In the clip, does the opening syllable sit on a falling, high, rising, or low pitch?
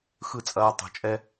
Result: falling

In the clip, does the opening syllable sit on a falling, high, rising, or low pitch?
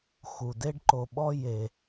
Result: low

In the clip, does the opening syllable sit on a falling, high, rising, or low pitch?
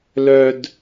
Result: high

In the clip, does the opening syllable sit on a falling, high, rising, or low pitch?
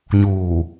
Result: low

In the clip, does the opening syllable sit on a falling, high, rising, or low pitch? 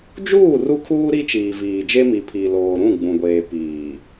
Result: falling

